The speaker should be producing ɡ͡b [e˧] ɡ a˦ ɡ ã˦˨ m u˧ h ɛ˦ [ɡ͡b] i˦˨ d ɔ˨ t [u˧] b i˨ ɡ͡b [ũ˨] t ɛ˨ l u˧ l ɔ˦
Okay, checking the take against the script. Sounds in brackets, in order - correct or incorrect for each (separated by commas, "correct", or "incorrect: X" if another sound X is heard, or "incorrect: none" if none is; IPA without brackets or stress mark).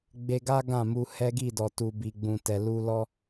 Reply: correct, incorrect: ɡ, incorrect: u˨, correct